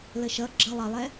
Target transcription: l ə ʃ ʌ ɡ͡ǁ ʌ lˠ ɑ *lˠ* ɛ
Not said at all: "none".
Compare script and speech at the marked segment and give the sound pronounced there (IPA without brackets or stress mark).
lˠ